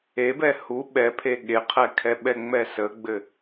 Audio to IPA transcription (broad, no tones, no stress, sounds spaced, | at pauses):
e b ɛ h u ɓ ɛ pʰ e ɠ e qʰ ɛ kʰ ɛ ɓ ɛ ŋ͡m ɛ s ə ɡ͡b ɘ